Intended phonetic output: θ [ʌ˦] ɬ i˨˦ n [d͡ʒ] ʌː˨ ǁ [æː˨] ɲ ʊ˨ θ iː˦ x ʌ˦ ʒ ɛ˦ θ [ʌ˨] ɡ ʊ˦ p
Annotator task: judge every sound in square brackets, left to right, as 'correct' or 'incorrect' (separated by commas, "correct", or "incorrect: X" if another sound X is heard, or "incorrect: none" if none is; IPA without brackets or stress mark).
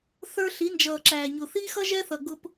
incorrect: ə˞˦, correct, correct, correct